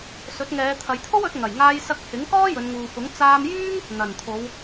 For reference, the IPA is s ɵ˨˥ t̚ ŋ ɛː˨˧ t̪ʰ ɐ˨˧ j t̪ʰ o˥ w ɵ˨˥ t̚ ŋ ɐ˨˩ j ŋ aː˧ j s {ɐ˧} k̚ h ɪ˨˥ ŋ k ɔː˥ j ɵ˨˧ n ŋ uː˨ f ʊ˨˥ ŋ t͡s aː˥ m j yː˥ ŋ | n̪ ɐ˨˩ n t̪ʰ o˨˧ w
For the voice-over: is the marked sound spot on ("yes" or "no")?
yes